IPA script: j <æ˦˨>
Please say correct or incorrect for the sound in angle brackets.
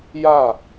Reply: incorrect